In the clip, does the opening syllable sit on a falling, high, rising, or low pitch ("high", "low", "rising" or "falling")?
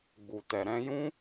low